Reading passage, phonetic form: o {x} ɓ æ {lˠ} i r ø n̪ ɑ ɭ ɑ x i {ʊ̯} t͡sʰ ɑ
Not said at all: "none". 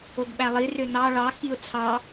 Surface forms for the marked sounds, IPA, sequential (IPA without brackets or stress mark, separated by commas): ɡ, lˠ, ʊ̯